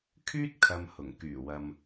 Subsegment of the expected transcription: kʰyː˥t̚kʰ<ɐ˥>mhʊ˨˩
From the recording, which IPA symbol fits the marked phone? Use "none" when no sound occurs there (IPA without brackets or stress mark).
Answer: ɐ˨